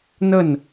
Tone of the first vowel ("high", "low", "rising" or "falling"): falling